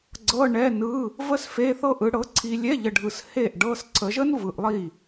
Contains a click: yes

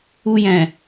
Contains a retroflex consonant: no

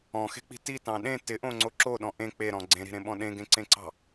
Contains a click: yes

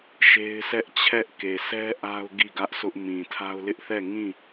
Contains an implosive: no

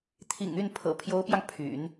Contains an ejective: no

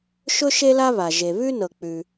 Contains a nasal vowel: no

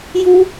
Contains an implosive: no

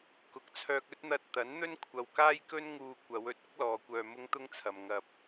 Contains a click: no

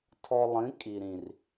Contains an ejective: yes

